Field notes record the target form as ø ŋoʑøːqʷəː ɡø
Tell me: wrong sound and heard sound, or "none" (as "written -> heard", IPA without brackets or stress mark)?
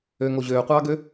əː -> ɑː